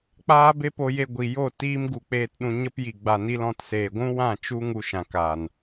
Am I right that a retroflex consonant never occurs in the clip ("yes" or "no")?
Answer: yes